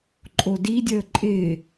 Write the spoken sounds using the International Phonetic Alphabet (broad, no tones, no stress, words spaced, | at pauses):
ǃʼodidʲəː ǃʼɪː